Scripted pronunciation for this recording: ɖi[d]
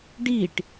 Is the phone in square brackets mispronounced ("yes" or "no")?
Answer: yes